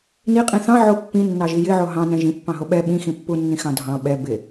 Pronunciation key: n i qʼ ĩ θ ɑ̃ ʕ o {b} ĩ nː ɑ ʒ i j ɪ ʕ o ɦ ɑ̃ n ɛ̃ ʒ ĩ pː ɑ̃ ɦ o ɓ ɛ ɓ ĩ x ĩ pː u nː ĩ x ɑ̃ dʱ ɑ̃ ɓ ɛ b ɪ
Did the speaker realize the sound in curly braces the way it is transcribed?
no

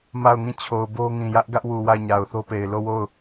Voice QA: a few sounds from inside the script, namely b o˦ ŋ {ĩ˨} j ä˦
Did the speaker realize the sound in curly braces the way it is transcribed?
yes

